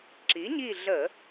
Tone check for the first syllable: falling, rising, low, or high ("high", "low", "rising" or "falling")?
rising